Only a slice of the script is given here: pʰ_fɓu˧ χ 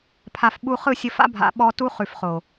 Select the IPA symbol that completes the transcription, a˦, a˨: a˨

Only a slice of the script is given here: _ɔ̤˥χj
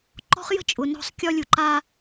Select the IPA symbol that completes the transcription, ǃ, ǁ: ǃ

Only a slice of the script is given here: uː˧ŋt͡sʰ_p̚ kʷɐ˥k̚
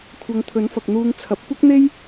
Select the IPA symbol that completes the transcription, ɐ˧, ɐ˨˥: ɐ˨˥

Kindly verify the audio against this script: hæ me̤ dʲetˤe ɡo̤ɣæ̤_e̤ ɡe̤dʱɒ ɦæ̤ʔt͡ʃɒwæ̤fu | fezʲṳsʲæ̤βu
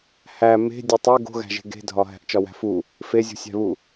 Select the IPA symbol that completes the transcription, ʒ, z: ʒ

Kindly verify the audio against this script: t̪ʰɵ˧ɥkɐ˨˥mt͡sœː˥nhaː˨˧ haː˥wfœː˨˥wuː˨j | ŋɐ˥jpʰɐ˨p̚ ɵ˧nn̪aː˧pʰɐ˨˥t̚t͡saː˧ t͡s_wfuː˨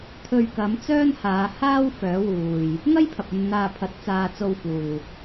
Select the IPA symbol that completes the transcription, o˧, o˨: o˧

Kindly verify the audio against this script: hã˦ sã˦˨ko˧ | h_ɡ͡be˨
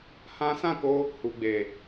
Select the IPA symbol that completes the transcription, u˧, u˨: u˨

